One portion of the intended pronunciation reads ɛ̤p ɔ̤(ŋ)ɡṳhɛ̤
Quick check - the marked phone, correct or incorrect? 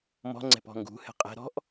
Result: correct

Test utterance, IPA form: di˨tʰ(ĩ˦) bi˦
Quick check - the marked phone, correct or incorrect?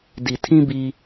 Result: correct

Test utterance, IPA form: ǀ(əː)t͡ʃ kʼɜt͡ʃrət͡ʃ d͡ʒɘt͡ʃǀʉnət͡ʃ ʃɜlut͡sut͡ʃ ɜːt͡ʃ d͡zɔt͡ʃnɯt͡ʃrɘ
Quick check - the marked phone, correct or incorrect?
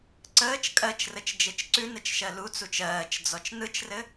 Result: correct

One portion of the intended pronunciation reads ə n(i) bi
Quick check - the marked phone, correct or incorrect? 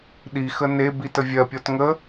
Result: incorrect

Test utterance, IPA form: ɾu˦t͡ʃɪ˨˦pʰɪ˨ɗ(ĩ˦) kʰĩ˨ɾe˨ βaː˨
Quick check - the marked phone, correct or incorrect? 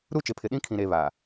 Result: correct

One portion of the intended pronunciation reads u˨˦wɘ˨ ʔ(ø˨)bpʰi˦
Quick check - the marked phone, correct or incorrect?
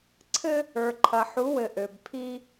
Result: correct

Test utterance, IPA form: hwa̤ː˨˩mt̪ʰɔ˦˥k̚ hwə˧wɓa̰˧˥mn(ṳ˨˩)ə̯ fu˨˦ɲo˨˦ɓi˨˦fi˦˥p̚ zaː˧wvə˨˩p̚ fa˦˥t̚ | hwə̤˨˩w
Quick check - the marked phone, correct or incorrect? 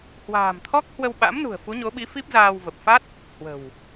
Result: correct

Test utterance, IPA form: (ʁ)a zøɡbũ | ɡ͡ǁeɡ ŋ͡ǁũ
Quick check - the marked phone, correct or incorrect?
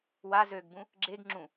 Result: incorrect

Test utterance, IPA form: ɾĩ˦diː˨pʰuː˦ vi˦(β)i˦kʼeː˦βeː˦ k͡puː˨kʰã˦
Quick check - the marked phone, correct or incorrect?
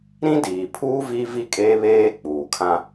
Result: incorrect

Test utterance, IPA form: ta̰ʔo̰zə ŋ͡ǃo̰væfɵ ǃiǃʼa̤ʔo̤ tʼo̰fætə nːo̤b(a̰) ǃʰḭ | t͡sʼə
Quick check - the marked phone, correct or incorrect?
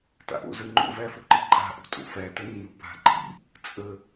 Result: incorrect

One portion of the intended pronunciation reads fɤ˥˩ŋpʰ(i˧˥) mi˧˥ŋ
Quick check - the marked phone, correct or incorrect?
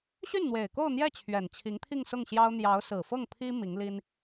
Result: incorrect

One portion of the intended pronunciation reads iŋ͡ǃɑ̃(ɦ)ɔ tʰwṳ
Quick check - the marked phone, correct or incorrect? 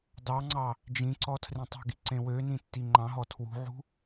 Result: correct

